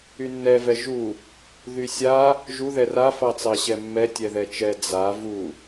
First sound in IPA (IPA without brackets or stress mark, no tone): y